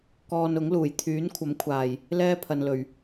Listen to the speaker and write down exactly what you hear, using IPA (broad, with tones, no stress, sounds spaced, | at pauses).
k ɔː˧ n ʊ˨˥ ŋ l uː˨˩ j t̪ʰ yː˨˥ n kʷʰ ɐ˨˥ m kʷʰ aː˨˩ j | l ɛː˥ pʰ ɐ˨ n l ɵ˨˩ ɥ